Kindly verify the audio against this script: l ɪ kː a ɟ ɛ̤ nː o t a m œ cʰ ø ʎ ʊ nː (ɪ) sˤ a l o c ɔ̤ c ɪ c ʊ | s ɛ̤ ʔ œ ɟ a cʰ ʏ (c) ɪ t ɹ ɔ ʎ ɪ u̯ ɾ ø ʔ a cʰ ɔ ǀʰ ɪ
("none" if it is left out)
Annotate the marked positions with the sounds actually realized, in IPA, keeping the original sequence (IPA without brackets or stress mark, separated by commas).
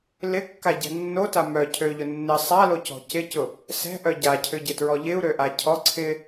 ɪ, ɟ